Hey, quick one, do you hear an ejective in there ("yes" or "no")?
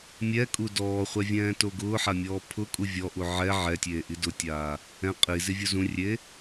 yes